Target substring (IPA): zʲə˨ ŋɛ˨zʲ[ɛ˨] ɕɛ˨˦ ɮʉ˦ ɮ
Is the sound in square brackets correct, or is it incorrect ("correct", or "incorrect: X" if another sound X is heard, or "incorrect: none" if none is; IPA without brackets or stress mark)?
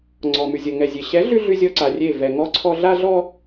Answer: incorrect: e˨